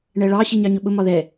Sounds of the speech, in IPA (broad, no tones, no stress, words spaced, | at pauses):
ɳɛɭɑ ɕiɲɑɲʊɓʊ mɒðɛ